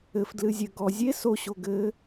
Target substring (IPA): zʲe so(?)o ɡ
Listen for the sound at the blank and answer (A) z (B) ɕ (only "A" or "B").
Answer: B